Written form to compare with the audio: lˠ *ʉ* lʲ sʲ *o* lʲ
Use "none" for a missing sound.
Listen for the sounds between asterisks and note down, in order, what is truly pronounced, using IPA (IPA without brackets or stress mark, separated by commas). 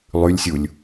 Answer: ʉ, u